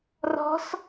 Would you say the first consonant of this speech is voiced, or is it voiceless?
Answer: voiced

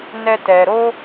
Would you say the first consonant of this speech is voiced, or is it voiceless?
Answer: voiced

